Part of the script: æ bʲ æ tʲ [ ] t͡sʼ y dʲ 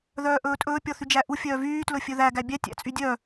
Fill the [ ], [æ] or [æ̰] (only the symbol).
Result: æ̰